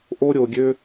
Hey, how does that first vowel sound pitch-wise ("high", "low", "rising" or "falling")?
high